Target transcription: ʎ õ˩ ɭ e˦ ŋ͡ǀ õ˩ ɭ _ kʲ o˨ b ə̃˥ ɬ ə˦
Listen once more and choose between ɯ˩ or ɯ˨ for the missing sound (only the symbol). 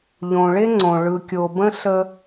ɯ˨